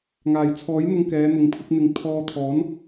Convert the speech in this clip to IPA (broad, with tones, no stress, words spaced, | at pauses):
ŋaː˨˩jt͡sʰɔː˨˥jn̪ʊ˧ŋ kɛː˨˧ n̪ʊ˨˥ŋ pʰɪ˧k̚n̪ɪ˨˥ŋ t̪ʰɔː˧t̪ʰɔː˨˥n